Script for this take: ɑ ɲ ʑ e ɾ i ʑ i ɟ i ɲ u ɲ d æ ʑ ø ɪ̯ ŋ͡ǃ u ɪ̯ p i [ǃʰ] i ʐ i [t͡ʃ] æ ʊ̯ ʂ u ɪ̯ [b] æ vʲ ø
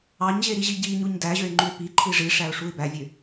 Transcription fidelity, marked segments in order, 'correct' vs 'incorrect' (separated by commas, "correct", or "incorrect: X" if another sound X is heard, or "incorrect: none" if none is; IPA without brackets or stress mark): correct, incorrect: ʂ, correct